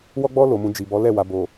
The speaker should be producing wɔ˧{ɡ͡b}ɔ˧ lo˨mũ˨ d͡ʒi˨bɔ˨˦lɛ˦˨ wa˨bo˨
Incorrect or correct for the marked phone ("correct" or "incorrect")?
correct